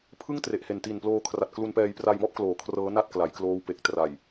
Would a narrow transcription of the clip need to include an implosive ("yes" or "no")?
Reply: no